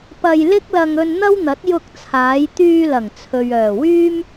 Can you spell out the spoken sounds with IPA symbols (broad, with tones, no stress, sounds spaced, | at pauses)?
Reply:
p ɐ˧ j l ɪ˥ k̚ l ɐ˧ ŋ ɵ˧ n n̪ ɐ˥ w n̪ ɐ˨˥ t̚ j ʊ˧ k̚ t͡sʰ aː˨˧ j t̪ yː˧ l ɐ˨˩ ŋ t͡sʰ ɵ˨ ɥ œː˨˩ w yː˥ m